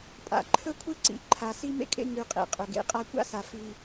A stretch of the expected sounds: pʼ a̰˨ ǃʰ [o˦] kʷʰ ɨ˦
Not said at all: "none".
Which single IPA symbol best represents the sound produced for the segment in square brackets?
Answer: ɵ˦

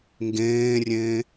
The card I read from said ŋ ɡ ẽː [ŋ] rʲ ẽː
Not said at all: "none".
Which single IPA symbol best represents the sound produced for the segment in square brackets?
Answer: none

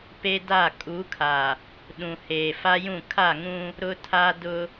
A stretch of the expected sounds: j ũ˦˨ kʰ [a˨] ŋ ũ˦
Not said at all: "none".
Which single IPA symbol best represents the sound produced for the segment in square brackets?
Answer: a˦˨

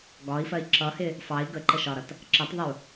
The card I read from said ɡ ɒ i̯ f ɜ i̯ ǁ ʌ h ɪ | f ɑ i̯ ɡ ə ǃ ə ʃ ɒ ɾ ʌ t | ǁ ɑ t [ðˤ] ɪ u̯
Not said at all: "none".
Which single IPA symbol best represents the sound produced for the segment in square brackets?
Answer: ðˤ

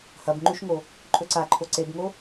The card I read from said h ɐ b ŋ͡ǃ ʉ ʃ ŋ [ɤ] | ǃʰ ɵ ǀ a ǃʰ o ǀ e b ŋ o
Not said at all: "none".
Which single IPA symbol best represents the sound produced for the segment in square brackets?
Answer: o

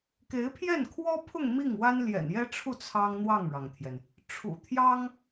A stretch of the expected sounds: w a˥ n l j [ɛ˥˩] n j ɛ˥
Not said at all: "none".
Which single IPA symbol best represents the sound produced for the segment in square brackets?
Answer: ɛ̰˨˩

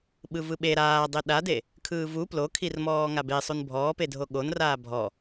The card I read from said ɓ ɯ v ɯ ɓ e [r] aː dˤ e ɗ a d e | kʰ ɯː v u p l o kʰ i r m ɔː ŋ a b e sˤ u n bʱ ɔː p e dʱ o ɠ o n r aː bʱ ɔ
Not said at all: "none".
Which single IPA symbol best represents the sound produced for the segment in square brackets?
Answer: ɾ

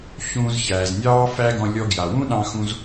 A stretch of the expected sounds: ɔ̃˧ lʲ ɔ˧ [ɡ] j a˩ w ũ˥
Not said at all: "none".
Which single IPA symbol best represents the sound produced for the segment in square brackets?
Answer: ɡ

